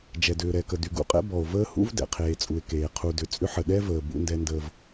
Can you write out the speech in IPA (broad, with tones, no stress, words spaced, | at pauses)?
d͡ʒɛ˨dʏː˨ɾɛ˨kə˨ dy˨ɡṵ˦qʼɛ̰˦bɔ˨o̯ vəː˦hṵ˦v dɛ̰˨ qʰeː˨t͡sʼu˨e̯keː˨ qʰu˨ dʏ˨t͡sʼʏ˦ ħə˨ɗɛ˦vəː˨ bṵ˦ndɛ˦ndəː˦v